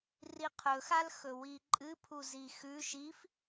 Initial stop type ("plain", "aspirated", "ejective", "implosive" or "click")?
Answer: aspirated